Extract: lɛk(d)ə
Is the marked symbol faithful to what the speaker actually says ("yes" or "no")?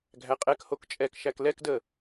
yes